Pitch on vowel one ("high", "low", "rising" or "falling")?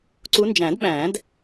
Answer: rising